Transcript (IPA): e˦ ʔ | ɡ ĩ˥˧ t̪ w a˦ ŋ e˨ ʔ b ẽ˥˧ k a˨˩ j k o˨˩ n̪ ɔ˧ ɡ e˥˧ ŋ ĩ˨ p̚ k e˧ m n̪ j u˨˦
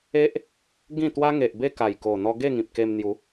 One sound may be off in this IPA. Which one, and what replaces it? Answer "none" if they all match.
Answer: ẽ˥˧ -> e˥˧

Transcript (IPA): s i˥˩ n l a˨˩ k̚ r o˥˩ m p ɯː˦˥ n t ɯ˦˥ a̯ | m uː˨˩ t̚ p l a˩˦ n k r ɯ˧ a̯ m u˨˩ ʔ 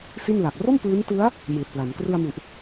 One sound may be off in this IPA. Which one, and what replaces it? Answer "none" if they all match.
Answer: uː˨˩ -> ɯː˨˩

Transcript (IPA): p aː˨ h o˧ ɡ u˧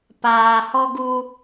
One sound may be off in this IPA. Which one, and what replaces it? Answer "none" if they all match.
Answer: o˧ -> ɔ˧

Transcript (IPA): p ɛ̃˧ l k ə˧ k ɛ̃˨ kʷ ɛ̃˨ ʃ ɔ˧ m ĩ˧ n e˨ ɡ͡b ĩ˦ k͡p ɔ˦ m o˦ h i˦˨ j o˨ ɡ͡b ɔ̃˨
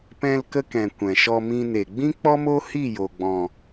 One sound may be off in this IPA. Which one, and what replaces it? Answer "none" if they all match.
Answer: none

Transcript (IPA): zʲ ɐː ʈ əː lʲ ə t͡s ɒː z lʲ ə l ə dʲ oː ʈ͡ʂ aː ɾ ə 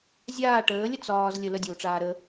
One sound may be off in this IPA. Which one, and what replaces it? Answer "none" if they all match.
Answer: ɐː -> aː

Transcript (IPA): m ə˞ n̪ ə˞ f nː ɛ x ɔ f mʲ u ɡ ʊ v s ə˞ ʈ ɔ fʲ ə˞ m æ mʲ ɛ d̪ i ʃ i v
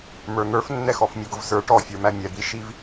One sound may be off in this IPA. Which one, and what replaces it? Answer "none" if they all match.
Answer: none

